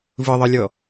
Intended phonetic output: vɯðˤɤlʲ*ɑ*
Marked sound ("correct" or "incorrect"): incorrect